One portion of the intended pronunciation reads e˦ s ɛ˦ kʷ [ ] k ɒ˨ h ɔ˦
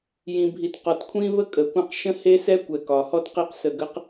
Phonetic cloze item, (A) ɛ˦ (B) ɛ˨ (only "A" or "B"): B